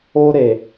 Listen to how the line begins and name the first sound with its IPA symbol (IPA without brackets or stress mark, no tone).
o